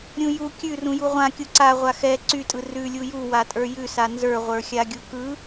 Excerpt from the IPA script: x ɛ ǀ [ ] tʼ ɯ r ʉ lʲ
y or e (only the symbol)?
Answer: y